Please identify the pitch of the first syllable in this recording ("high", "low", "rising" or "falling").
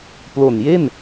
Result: low